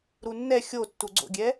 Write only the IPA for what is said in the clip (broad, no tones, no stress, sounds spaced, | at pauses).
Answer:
ɾ u nː ɛ xʲ o tː u ɡ͡ǀ o̰ ɡʲ ɛ